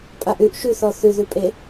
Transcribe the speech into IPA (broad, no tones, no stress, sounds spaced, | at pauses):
pʼ a ʔ ʉ ʔ ʃ ʉ θ ɔ θ ʉ ð ʉ pʼ e